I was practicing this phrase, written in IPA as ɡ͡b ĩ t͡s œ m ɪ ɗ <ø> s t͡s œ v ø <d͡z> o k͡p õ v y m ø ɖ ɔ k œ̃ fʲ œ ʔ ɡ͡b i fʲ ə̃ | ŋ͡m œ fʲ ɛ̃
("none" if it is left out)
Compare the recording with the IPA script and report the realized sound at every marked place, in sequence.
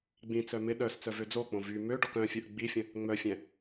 œ, d͡z

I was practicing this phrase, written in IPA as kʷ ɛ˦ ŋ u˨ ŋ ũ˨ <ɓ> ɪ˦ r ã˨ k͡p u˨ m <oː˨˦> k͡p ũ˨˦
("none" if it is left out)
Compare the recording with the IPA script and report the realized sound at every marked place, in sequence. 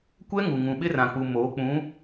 ɓ, oː˨˦

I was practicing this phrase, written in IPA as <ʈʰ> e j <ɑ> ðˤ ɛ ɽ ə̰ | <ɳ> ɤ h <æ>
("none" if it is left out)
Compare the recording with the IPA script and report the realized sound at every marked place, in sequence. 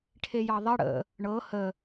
ʈʰ, ɑ, ɳ, ə

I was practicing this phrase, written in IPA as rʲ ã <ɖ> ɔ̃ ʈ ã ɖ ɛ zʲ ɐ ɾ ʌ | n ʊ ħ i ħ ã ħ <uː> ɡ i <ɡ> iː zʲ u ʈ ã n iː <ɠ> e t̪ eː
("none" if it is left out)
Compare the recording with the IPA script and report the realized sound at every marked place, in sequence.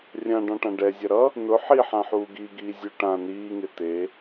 ɖ, uː, ɡ, ŋ

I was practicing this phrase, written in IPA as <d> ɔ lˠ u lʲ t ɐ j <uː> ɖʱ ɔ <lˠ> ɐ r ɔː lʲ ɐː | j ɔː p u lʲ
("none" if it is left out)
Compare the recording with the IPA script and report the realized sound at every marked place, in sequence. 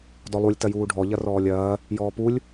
d, uː, ʎ

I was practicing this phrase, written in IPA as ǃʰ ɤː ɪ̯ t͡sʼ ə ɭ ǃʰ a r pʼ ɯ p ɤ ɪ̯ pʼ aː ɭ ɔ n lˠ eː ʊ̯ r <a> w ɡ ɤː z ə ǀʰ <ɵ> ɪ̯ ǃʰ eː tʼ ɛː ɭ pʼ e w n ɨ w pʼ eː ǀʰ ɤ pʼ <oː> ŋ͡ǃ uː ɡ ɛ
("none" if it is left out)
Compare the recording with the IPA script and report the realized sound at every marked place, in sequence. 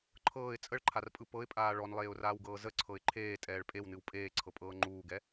aː, ɤ, ɤː

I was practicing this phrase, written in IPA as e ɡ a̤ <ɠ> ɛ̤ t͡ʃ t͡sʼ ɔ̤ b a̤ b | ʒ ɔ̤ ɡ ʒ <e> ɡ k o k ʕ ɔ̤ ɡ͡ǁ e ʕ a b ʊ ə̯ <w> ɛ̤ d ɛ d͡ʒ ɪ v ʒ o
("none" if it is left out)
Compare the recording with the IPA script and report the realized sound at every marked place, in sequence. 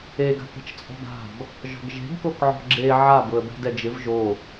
k, e̤, b

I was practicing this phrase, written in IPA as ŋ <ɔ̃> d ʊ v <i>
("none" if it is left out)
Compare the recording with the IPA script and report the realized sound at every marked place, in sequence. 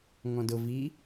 ɔ̃, i

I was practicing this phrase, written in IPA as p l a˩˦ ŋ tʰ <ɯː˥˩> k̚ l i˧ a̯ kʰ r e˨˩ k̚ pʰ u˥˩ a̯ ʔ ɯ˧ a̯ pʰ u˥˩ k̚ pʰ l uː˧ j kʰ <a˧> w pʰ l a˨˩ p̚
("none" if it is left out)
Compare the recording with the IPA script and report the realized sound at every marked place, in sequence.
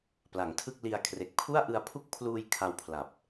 ɯ˥˩, a˧

